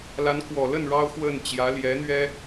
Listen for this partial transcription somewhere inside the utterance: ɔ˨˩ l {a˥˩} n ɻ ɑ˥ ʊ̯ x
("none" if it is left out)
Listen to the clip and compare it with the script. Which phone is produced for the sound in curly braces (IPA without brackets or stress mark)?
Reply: ə˥˩